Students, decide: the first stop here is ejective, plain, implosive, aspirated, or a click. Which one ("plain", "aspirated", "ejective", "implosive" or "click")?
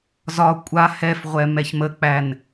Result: ejective